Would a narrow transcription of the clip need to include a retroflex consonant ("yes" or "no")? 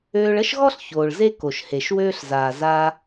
yes